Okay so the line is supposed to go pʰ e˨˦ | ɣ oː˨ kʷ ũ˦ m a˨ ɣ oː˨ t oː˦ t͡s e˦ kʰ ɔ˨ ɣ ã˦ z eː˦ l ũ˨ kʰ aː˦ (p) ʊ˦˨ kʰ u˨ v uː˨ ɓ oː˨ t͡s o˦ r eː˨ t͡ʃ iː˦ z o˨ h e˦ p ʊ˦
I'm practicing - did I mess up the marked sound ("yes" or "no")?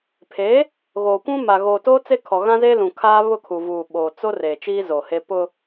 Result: yes